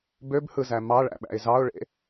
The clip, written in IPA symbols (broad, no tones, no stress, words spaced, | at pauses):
bøbhɯzæ mɑɭæ̰ɓæ̰ɪ̯ zɑʊ̯ɭḛ